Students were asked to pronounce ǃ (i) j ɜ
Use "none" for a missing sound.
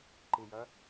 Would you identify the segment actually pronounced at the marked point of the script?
i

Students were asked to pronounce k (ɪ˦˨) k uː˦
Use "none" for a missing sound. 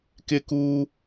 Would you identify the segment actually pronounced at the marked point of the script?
ɪ˦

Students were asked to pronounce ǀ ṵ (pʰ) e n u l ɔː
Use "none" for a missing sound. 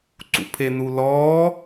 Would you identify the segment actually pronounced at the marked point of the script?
pʰ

